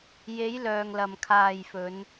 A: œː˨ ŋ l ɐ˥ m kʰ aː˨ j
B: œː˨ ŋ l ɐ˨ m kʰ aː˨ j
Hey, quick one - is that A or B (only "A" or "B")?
B